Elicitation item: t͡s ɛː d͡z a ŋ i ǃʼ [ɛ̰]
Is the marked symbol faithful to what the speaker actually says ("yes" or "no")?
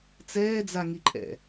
yes